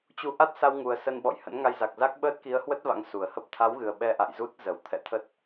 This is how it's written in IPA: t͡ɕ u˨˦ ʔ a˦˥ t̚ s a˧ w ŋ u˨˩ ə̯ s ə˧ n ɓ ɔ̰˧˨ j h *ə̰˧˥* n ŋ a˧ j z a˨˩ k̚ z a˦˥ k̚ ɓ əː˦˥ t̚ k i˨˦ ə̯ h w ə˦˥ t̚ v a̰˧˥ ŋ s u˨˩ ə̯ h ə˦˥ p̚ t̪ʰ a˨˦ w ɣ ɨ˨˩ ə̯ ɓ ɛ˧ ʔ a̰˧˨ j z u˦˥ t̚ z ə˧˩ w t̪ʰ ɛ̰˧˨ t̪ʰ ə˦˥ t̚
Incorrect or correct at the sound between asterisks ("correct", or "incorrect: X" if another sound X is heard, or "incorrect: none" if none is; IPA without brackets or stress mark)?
correct